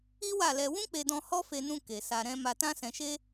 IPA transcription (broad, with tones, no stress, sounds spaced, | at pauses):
i˦ w a˦˨ l ɛ˧ w ũ˦ k͡p e˧ d ɔ̃˧ h ɔ˦ f e˧ n ũ˧ k e˨ s a˧ ɾ ɛ̃˦ m a˧ t ã˦ s ɛ̃˧ ʃ e˦